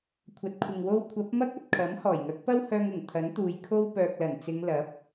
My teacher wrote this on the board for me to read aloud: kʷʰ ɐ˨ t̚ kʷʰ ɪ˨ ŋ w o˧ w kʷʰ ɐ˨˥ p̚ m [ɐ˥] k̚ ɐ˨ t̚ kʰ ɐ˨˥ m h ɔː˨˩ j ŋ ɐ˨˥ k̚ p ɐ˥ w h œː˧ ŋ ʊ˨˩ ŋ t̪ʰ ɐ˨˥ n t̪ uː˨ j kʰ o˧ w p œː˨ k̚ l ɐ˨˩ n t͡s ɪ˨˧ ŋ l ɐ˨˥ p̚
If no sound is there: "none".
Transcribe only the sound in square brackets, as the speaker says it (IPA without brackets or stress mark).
ɐ˥